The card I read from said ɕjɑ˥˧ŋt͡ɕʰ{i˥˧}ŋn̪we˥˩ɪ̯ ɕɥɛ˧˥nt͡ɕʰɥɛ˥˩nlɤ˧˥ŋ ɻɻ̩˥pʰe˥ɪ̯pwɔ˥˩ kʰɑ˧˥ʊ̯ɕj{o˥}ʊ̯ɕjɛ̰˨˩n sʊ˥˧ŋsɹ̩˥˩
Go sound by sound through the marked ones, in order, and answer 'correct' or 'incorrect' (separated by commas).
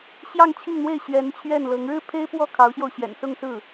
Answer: correct, incorrect